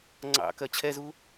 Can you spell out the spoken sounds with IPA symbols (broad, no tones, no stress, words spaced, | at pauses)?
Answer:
ŋ͡ǀɑ̰kɜ t͡ɕʰɛzu